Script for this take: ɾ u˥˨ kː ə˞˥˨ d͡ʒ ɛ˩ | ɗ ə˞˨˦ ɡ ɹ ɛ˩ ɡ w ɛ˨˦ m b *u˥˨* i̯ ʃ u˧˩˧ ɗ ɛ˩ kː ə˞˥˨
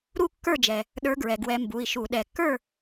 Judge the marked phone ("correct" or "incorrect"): incorrect